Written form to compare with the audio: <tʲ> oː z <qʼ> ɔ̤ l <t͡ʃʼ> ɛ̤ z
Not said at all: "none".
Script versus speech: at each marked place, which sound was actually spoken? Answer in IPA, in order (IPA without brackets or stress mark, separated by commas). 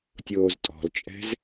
tʲ, tʼ, t͡ʃʼ